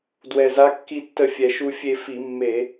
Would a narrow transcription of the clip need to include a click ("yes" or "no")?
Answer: no